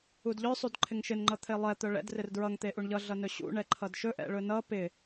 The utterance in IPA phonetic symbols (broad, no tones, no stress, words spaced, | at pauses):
udʎœ sˤudǃʰɪŋʃɪn ŋ͡ǃʌt̪ʰelˠɛ t̪œɭɛ̰d rɪrdɹʌŋ t̪eʔuɳʎʌ ɮʌnɵɕṵ ɳɛǃʰʌdʃɵ ʔɛ̰ɭɵnʌ pɪ